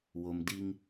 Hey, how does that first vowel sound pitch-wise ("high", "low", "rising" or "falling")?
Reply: low